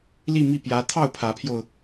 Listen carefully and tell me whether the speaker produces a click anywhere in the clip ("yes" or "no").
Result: no